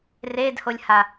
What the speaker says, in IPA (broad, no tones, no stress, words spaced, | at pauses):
redholʲha